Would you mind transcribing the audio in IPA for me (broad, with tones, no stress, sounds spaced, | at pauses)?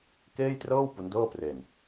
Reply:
k eː˥˩ j t r ɤː˥˩ w p u˦˥ n d ɤː˥˩ p r e˧ n